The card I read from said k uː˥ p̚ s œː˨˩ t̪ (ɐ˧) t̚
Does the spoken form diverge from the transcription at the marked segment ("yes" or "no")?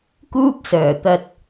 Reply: no